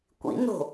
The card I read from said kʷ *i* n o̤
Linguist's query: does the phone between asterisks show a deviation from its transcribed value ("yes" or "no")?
yes